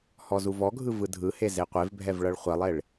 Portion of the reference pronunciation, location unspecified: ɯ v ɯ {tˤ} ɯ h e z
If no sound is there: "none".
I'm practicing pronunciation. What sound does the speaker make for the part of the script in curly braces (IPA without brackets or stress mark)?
dʱ